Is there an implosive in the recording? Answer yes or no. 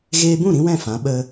yes